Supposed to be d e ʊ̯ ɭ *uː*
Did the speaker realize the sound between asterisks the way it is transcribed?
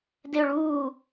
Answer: yes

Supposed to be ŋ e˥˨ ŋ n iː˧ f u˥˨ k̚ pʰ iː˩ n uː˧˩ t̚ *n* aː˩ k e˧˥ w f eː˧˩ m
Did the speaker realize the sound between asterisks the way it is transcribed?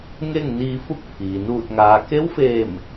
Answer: no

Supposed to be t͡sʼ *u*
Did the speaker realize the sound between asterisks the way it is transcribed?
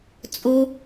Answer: no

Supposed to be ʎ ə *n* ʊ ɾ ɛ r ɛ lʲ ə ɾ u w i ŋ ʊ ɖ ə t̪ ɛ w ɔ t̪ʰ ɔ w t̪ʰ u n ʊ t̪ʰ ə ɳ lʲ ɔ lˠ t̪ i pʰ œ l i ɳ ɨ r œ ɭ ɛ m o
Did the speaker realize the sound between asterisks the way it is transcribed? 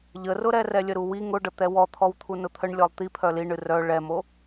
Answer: no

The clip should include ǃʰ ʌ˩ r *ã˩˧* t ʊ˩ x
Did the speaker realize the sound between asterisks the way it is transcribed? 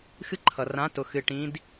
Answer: yes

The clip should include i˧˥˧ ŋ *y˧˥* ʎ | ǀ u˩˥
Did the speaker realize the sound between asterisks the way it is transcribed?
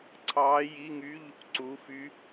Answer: no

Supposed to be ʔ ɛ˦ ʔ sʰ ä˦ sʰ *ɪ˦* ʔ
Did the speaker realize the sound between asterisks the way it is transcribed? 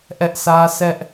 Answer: no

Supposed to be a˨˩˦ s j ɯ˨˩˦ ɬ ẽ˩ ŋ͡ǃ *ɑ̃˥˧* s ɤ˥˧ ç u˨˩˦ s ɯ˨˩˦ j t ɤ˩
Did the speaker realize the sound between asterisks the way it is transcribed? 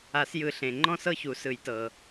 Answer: no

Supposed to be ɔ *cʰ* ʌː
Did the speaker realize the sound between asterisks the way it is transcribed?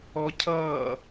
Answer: yes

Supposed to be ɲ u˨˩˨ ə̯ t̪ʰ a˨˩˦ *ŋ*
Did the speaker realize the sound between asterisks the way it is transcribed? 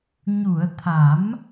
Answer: no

